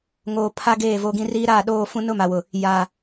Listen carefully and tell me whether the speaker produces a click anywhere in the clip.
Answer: no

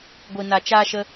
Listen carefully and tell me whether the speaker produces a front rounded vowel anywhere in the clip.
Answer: no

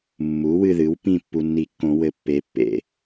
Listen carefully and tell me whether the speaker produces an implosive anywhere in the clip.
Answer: no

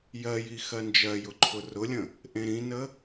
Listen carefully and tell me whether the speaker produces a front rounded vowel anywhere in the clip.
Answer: no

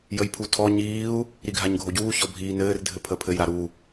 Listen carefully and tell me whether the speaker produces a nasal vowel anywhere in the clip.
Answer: no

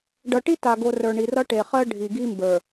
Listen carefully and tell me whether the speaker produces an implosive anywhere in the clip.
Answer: no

